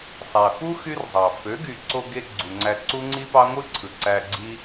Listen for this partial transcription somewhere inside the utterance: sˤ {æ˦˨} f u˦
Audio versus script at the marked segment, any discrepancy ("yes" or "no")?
yes